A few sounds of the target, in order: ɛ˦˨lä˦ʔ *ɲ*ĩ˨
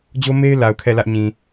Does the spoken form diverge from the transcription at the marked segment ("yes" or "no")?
no